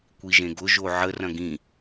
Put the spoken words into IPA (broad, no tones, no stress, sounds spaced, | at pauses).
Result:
kʷ i ʒ ẽ ɡ ʊ ʒ o ʕ ə r ɐ̃ ɡ ĩ